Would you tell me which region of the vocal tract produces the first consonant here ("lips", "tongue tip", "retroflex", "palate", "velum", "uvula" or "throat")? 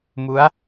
lips